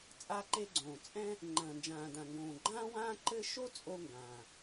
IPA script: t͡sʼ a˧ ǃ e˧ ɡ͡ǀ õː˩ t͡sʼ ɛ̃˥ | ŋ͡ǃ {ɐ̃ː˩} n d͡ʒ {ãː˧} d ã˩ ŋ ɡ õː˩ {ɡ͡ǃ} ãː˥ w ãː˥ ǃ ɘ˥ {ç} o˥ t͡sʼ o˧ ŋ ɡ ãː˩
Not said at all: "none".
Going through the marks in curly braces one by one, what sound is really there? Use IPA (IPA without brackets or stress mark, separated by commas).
ɐ̃ː˩, ãː˩, ɡ͡ǃ, ʃ